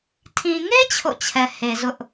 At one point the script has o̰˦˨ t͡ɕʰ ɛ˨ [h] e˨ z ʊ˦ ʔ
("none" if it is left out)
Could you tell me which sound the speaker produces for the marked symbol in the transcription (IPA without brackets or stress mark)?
h